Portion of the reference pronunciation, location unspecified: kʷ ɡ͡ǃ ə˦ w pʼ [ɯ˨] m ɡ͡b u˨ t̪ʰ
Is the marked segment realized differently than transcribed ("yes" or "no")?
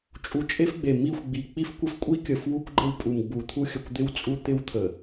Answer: yes